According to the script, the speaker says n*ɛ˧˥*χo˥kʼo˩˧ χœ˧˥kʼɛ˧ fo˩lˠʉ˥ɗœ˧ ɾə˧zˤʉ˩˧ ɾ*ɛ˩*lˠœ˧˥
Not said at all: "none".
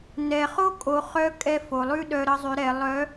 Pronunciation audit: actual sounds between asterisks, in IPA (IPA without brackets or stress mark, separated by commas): ɛ˩, ɛ˩˧